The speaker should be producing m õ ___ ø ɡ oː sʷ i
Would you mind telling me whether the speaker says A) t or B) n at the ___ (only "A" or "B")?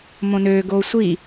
B